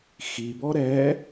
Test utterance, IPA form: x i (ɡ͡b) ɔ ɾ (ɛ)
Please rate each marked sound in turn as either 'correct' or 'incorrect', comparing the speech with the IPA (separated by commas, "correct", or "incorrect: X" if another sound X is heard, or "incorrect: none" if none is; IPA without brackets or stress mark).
incorrect: b, correct